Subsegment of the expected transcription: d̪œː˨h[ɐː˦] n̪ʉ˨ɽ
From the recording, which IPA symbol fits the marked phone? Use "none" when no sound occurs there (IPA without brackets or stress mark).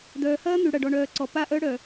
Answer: ɐː˦